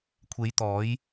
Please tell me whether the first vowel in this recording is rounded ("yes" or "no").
no